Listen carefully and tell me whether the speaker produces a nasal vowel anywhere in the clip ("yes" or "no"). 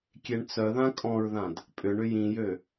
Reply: yes